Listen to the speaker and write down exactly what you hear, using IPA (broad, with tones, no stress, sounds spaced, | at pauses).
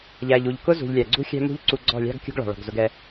ʎ æ˨ ʎ u˨ ʎ k ʊ˦ z ṳ˨ ʎ lʲ æ˨ ɡ͡ǀ ṳ˦ xʲ æ̤˦ m ṳ˦ ʎ ǀ u˧ ɡ͡ǀ ɔ̤˦˨ lʲ ɑ̤˦ ɡ kʲ ṳ˦ ɡ ɭ ɑ̤˨ ɭ ɔ̤˨ ɡ z ʊ˧ ɡ ɛ˧